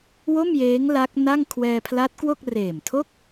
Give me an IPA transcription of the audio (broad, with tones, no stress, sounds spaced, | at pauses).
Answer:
w o˥˩ m j eː˦˥ ŋ l a˦˥ k̚ n a˥˩ ŋ kʰ w ɛː˧ pʰ l a˦˥ t̚ k w o˥˩ k̚ r eː˨˩ m tʰ o˥˩ k̚